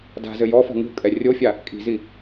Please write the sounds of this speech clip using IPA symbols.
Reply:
d a̤ z ɘ j ɔ f ɔ̤ ŋ ṳ kʼ ɛ rʲ o fʲ a | kʼ i̤ z i

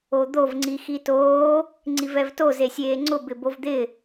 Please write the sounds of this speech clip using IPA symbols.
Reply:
o d̪ o v ŋ͡ǀ i x i t oː | ŋ͡ǀ i v ɛ v t o z e sʲ eː ŋ͡ǀ ʊ b ɪ b o v d̪ ɪ

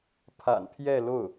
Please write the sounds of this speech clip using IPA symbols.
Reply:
pʰ a̰˨˩ n pʰ j ɛ˥˧ l o˥˩ ʊ̯

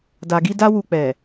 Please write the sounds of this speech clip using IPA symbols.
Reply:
d a˨ ɡ i˧ d a˦ w u˧ k͡p ɛ˨

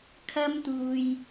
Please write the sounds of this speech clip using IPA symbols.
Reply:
kʰ ɐ˥ m t̪ uː˧ j

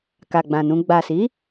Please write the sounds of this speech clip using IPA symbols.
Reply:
k a˨ ɡ͡b ã˨ n ũ˧ ɡ͡b a˨ s i˨˦

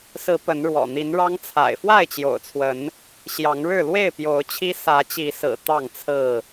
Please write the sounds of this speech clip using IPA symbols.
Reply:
s ɹ̩˨˦ p ə˨˦ n ɻ w ɔ̰˨˩ n̪ i˨˦ n ɻ ɑ˦ ŋ t͡sʰ a̰˨˩ ɪ̯ f w a˥˨ ɪ̯ t͡ɕ j o̰˨˩ ʊ̯ t͡sʰ w ə˨˦ n | ɕ j ɑ˨˦ ŋ ɻ ɻ̩˥˨ l w e˥˨ ɪ̯ p j o˨˦ ʊ̯ t͡ɕʰ i˦ s ä˨˦ t͡ɕ i˨˦ s ɹ̩˨˩ t̪ ɑ˥˨ ŋ t͡sʰ ɹ̩˥˨

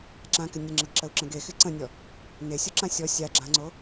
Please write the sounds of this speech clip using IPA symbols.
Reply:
ǁ ã k ɪ nʲ ə ŋ͡ǁ ə ɡ ǁ ə u̯ ǁ ə̃ ɡ e x ɪ ǀ ə̃ nʲ ɔ | n e sʲ o ǁ ã sʲ ɔ sʲ a ɡ͡ǁ ã ŋ͡ǀ o

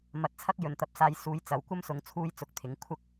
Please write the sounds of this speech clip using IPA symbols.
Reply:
m ɐ˨˥ t̚ t͡sʰ ɐ˥ k̚ j ɵ˨ n t̪ ɐ˧ p̚ s aː˧ j s uː˨˥ j t͡s ɐ˨ w kʷ ɐ˥ m s ʊ˨˧ ŋ t͡sʰ uː˥ j t͡s ʊ˧ k̚ t̪ʰ ɪ˨˥ ŋ kʷʰ ɐ˥ k̚

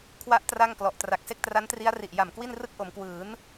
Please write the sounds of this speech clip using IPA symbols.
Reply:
kʰ w a˦˥ ʔ t r a˥˩ ŋ k l ɔ˨˩ ʔ t r a˨˩ k̚ s e˥˩ k̚ t r a˦˥ n t r i˦˥ a̯ r i˨˩ ʔ j a˨˩ m k w i˥˩ n r ɯ˥˩ k̚ ʔ o˩˦ m k w ɯː˩˦ n

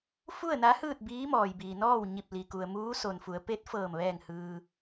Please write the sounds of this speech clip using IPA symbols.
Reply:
f u˥˨ ə̯ n a˧˥ h ɯː˥˨ t̚ b iː˧˥ m ɔː˩ j b iː˩ n ɔː˥˨ w ɲ i˧˩ p̚ l i˩ k u˩ ə̯ m uː˧˥ s o˩ n f u˩˧ ə̯ p e˧˥ t̚ f ɤː˧˩ m ʋ ɛː˥˨ ŋ h ɯː˧

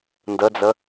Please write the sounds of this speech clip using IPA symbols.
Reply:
n d ə d͡z ə

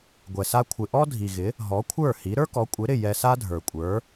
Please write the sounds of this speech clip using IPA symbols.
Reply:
ɡʷ ɛ˩ s a˧ kʷʰ ɪ˩ ʔ ɔ˥ dʱ i˩ ɣ ɪ˩˥ | ɦ ɔ˩˥ kʷʰ ə˞˥˩ h i˩˥ ɾ ə˞˥ k ɔ˩˥ kʷʼ ɪ˩˥ ɾ ɪ˥˩ j ɛ˧ s a˥ dʱ ə˞˩ kʷʼ ə˞˩˥

